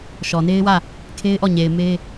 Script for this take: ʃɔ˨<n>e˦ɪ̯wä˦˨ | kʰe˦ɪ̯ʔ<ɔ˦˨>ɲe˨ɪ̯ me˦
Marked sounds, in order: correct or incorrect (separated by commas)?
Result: correct, correct